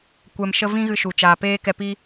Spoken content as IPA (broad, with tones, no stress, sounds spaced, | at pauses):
kʷ ɛ˧ m ʃ ə˦ v ĩ˦ ɣ ɨ˧ ʃ u˨ t͡ʃ aː˨ p eː˦ k ɛ˧ p i˦